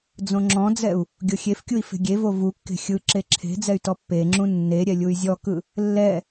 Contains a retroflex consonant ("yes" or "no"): no